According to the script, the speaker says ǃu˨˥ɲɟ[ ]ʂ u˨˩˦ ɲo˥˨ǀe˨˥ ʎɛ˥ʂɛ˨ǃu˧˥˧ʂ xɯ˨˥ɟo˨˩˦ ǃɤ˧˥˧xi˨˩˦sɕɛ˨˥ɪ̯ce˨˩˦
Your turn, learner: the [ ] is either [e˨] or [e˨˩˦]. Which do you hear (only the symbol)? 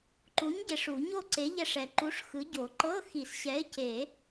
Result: e˨